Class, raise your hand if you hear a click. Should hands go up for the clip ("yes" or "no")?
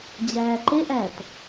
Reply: yes